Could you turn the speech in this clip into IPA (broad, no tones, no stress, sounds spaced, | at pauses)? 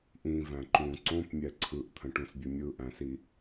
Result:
ʔ ĩ v æ̃ ǃ ũ ǀ õ p mʲ ɛ ǀʰ ɯ ʔ t̪ʰ ə̃ ʈ ũ s bʲ ə mʲ ɯ ʔ æ̃ s i